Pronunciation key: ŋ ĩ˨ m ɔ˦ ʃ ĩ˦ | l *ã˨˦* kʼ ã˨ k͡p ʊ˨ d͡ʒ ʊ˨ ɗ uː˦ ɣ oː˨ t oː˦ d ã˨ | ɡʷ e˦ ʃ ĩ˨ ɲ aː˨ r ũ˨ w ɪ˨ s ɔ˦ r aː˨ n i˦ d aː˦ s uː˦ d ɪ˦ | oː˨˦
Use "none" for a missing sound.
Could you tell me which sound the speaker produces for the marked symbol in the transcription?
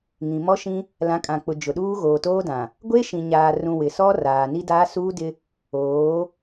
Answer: ã˨˦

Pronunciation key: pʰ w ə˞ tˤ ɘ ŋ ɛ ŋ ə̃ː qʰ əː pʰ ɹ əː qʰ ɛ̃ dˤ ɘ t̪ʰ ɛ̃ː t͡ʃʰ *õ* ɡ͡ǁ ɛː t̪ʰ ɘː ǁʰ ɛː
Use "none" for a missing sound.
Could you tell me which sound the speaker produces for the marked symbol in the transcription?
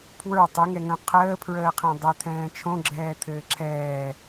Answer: õ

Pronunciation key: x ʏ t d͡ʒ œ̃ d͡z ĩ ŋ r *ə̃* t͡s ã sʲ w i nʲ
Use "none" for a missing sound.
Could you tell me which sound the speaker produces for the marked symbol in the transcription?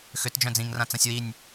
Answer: ã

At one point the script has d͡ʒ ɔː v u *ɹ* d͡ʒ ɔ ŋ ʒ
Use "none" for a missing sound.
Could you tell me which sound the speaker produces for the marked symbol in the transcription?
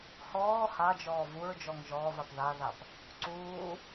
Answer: ɹ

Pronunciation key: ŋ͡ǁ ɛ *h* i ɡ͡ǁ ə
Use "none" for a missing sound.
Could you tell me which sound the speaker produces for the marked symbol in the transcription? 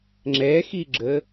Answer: x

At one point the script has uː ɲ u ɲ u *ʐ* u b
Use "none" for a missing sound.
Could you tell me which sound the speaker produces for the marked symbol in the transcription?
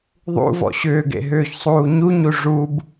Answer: ʐ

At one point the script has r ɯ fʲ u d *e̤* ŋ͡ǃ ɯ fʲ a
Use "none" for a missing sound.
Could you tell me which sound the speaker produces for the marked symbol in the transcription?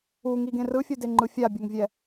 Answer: e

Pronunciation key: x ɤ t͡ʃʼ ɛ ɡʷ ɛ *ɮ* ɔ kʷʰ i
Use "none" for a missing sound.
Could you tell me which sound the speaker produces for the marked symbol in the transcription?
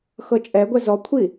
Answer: z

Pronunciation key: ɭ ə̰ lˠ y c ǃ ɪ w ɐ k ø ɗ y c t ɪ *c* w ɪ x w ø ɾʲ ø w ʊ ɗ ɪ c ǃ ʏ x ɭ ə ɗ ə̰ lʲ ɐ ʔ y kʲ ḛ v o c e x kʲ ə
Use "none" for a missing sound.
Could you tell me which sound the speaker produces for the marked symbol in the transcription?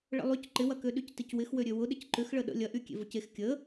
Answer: c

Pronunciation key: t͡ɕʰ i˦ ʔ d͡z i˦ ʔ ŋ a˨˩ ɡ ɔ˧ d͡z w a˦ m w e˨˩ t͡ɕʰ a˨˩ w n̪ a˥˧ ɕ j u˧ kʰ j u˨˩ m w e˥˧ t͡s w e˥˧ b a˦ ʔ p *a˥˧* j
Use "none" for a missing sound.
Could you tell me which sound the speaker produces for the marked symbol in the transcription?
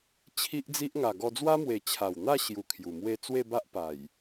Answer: a˨˩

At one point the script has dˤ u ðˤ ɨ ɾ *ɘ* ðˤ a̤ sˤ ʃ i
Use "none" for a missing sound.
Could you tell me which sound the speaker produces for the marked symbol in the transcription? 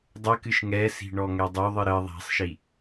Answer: ɘ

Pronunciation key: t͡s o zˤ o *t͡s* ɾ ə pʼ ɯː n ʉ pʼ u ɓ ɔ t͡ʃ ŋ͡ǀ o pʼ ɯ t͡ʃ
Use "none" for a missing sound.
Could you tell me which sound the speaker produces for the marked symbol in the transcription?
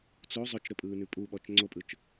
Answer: t͡ʃ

